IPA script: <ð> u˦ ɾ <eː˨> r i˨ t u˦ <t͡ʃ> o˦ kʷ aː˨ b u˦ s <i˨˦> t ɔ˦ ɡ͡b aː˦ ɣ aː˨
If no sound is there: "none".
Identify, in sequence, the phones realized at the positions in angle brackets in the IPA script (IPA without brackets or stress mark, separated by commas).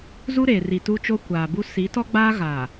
z, eː˨, t͡ʃ, i˨˦